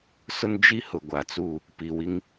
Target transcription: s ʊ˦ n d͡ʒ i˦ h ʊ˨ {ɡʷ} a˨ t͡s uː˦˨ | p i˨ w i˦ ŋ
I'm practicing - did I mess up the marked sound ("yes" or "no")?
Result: no